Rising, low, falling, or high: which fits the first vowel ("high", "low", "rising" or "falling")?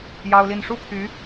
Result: high